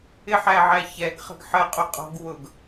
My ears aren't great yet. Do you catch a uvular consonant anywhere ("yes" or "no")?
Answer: yes